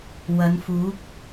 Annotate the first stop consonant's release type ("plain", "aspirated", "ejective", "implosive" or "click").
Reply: plain